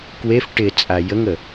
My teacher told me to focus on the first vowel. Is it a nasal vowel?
no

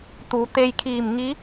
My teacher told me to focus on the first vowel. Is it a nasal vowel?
no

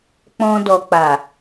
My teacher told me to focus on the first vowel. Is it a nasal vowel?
yes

